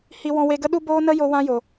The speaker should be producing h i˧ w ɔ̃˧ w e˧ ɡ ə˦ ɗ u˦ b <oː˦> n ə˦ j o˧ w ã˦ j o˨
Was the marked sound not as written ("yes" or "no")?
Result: no